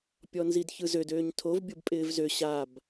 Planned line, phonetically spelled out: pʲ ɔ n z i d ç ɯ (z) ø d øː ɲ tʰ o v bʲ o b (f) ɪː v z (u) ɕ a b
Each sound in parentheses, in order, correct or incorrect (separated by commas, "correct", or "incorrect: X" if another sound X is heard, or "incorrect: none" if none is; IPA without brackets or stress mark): correct, incorrect: pʼ, incorrect: ø